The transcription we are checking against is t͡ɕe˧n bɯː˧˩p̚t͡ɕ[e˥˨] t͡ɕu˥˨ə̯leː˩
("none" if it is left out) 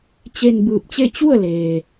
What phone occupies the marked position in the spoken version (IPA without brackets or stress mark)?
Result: e˥˨